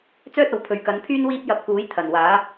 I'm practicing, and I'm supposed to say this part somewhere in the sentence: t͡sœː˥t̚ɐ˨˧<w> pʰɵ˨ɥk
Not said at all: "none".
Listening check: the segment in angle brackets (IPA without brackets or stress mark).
w